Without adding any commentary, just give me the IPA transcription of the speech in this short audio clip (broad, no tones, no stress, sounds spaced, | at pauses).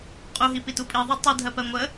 qʼ u ɦ i p i t u pʼ i ðˤ o tˤ i dʱ ɜ p ɜ ŋʷ ə